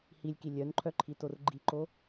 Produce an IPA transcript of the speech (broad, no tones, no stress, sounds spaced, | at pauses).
h i lʲ k i lʲ œ n ǃʰ œ ǃʰ i t o r ɡ͡ǃ i ǃ o